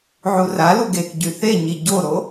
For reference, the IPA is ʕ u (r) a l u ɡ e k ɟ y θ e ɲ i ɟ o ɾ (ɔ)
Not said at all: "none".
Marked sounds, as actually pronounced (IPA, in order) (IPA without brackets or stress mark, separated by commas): r, o